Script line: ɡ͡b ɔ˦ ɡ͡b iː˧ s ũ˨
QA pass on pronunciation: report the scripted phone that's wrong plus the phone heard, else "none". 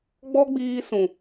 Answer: none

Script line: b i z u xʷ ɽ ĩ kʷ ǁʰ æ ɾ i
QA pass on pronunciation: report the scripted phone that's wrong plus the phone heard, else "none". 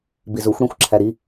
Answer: kʷ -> xʷ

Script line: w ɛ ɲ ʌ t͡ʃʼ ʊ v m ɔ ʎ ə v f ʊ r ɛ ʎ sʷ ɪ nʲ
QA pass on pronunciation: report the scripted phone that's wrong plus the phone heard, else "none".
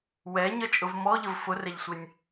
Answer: none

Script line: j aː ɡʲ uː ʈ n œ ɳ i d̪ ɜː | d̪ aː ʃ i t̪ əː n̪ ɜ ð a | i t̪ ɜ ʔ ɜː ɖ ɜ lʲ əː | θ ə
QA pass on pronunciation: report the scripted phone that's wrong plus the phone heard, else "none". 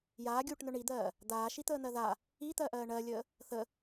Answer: ɖ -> ɳ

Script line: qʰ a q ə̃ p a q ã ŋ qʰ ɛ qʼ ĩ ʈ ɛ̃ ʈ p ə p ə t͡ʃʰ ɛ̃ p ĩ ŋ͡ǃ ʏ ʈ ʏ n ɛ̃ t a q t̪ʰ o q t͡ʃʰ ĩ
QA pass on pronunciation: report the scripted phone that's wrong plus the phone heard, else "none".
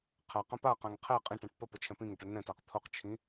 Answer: ŋ͡ǃ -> ŋ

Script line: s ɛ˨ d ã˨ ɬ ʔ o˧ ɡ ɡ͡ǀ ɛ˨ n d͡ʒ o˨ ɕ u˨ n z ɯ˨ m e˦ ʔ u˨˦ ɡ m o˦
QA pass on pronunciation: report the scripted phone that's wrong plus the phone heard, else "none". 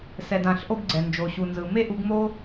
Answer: none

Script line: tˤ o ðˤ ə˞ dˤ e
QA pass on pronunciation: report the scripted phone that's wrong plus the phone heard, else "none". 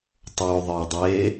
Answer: none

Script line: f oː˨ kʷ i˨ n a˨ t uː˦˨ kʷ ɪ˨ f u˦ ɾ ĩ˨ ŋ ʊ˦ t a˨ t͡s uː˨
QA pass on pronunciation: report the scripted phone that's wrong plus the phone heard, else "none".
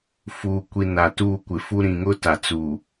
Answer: oː˨ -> uː˨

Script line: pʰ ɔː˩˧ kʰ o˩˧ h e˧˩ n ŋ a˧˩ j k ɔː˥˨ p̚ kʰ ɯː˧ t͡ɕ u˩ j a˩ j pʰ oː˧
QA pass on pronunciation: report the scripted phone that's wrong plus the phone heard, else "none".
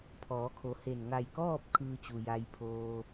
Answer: none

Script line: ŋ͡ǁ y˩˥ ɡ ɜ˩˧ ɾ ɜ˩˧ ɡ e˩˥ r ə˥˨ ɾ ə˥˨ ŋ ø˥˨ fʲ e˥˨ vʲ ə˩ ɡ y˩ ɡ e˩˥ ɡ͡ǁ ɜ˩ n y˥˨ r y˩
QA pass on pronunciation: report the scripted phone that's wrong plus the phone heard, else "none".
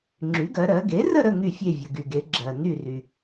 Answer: ø˥˨ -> y˥˨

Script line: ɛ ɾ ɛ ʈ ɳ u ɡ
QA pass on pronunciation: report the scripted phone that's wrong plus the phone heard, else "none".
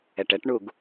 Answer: ɾ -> ʈ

